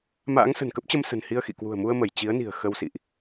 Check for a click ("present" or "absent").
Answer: absent